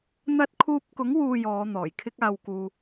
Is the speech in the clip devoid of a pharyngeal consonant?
yes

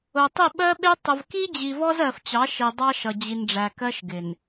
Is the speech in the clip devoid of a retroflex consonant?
no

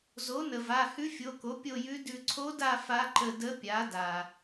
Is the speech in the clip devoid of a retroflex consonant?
yes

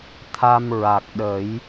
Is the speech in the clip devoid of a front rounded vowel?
yes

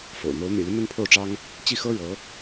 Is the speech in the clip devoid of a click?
yes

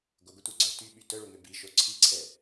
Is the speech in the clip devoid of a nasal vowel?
yes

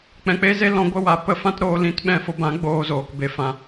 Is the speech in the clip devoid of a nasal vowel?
no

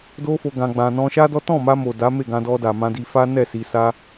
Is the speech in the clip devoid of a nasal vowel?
no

